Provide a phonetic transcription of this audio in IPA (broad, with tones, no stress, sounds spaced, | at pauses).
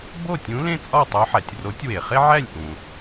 b o˥˨ tʲ ũ˧˥ l ẽ˥ t͡sʼ ɒ˥˨ tˤ o˧˥ ħ æ˩ tʲ r o˧˥ tʲ w e˩ χ e˥ ʕ æ˥˨ lʲ ʔ ũ˩